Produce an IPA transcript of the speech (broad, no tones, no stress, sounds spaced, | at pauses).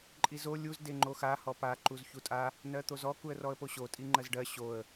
ǃʼ i z o lʲ u z d e ŋ͡ǃ o x a h ɔ p a ǃ u z ç u tʼ a | n ɜ t̪ o z ɔ k u ə̯ r ɔ ə̯ p o ɕ o tʼ i ŋ͡ǃ ɜ z ɖ ɜ ɕ o ə̯